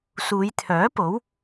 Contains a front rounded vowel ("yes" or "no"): yes